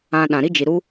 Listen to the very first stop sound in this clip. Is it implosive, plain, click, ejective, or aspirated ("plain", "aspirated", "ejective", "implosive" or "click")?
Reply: implosive